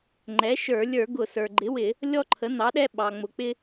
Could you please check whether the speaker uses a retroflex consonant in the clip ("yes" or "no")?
no